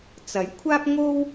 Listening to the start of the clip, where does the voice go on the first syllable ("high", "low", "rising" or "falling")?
rising